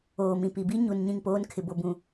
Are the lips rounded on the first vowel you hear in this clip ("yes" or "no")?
yes